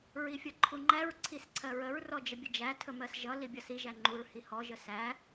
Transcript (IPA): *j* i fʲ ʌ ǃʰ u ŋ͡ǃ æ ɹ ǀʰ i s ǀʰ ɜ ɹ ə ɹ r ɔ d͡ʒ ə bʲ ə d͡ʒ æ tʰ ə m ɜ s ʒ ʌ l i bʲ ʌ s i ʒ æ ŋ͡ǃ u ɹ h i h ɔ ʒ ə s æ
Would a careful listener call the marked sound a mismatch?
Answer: yes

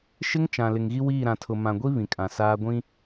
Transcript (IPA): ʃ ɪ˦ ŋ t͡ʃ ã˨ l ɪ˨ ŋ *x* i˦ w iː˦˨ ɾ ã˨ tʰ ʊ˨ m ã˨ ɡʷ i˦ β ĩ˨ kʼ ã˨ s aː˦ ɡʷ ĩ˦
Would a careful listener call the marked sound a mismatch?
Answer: yes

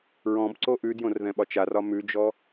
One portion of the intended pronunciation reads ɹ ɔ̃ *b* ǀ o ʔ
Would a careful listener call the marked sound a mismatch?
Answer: no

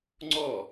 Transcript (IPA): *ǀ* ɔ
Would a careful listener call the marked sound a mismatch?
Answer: yes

